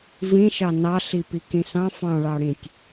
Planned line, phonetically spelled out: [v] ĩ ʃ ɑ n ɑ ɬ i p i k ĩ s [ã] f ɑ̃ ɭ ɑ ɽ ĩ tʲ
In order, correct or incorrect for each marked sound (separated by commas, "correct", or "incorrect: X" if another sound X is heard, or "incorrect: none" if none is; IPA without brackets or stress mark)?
correct, incorrect: ɑ̃